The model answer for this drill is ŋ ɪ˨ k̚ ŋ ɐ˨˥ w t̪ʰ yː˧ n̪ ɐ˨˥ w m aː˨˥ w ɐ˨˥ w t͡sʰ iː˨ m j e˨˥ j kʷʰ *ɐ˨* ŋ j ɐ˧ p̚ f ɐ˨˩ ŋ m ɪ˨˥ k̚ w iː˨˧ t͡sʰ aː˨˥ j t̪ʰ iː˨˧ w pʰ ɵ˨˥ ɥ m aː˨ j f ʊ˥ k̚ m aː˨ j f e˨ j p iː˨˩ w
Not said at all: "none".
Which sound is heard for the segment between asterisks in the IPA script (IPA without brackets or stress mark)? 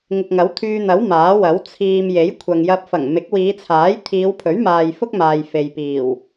ɐ˨